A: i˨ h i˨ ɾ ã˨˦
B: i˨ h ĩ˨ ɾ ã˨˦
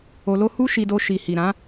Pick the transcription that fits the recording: A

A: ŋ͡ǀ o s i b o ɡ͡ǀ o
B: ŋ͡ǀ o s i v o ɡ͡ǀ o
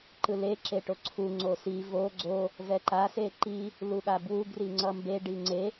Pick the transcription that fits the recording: B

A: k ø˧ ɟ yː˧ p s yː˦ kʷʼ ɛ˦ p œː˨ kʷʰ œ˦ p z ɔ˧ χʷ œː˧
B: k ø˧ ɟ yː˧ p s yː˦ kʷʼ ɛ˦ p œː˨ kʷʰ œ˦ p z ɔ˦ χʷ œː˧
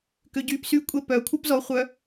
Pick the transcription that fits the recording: A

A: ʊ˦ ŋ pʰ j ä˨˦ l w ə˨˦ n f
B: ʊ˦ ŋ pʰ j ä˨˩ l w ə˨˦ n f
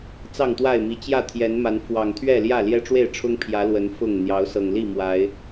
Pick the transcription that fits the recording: A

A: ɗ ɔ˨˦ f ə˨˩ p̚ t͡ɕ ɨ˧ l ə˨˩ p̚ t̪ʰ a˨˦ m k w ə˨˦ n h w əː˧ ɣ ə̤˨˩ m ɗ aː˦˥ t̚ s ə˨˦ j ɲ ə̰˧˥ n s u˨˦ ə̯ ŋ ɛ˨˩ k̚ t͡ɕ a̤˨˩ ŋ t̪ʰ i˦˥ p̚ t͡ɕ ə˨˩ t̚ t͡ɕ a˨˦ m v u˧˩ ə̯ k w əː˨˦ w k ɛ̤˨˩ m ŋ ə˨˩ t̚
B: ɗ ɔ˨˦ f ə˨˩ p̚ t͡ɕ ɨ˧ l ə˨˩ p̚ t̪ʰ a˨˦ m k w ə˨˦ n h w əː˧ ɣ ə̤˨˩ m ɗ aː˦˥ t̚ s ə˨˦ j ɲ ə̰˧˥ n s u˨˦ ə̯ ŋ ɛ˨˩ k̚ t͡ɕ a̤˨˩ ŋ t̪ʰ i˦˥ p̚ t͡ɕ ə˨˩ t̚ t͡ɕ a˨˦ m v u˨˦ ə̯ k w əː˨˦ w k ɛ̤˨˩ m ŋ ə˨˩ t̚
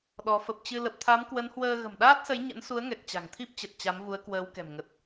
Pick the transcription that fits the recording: B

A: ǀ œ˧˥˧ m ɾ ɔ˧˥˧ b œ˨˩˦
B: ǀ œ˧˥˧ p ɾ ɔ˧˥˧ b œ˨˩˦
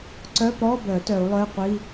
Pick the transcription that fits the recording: B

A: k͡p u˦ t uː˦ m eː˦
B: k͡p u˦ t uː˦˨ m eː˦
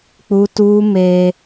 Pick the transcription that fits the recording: A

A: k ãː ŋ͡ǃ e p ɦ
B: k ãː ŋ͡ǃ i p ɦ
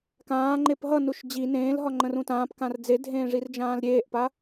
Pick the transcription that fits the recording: A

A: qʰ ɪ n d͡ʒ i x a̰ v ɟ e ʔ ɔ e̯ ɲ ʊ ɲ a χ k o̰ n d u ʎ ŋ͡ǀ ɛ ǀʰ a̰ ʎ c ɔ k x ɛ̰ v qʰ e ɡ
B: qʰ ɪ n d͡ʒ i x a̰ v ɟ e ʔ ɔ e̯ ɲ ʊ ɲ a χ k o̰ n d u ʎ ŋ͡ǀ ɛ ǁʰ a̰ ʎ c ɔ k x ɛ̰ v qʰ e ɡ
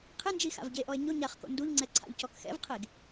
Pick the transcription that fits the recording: A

